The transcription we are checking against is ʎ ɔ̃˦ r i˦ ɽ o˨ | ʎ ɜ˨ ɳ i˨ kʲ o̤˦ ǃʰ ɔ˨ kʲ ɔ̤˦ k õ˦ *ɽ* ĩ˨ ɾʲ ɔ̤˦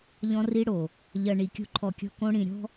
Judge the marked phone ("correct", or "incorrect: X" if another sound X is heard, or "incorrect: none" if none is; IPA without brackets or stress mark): correct